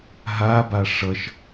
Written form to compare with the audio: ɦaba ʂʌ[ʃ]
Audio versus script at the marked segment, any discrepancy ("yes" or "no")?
no